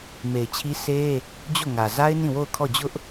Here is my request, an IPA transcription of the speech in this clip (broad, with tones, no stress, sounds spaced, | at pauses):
m e˨ ɪ̯ t͡ɕʰ i˦ sʰ e˦ | d͡ʑ o˦˨ ŋ ä˨ z a˦ ɪ̯ n ĩ˦˨ w o˦˨ ʊ̯ kʰ ɔ˦˨ d͡ʑ ʊ˦ ʔ